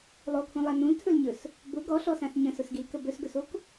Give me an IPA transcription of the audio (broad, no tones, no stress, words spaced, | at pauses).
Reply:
lˠokʰũlˠa nũltʰɵlɲɵs | bʊ ɡɔɬɔsãs ɲə̃sʊsɡilkə bɵsɡɵsok